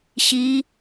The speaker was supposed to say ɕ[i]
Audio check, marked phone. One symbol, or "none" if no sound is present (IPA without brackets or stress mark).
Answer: i